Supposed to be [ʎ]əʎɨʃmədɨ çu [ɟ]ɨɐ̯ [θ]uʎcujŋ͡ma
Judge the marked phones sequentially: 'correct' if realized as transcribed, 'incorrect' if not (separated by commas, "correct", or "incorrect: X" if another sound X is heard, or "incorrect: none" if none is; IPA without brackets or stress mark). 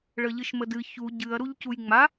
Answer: incorrect: ɭ, correct, incorrect: ɾ